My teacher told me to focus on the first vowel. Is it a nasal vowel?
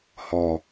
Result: no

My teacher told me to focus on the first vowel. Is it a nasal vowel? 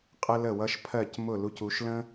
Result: no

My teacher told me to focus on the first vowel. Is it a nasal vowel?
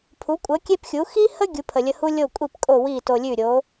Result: no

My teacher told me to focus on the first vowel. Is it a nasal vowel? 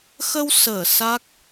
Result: no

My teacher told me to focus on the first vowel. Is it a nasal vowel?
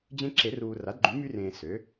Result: yes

